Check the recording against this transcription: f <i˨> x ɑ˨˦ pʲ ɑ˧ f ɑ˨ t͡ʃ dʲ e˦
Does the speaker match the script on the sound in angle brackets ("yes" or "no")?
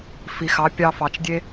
yes